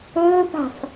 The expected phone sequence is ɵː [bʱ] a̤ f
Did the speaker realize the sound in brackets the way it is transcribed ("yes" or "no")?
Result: no